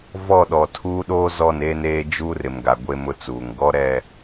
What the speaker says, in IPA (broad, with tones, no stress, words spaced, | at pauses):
vɔ˦˨ɗɔ˨ tʰuː˦ɗoː˦ zɔ˦˨neː˦neː˦ d͡ʒuː˦rɪ˨mɡa˨ ɡʷe˦mʊ˦t͡suː˨ŋ ɡɔ˦ɾɛ˦˨